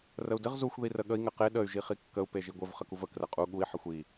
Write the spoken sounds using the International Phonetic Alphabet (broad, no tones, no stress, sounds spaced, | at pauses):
r ə u̯ d ɘ ʁ z u xʷ ð i r ə ɠ ə i̯ ŋ ɘ q e ɗ ə y̯ ʒ i χ i kː ə u̯ p e ʒ i ɡʷ ɘ v χ ə k u v ə k r ə qʼ u ɠ u i̯ ħ ə xʷ i